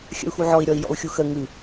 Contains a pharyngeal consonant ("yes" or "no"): yes